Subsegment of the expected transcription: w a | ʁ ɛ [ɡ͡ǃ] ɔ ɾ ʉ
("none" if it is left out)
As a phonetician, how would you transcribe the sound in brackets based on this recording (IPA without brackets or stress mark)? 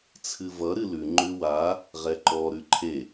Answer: ǃ